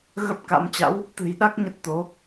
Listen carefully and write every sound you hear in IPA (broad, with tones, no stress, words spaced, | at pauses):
ɣə˦˥p̚ka̰˧˥m t͡ɕa̰˧˥w | t̪ɨ̤˨˩jɗa˦˥k̚ ɲə˦˥t̚t̪o˨˦